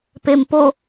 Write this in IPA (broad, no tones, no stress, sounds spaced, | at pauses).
p e m p o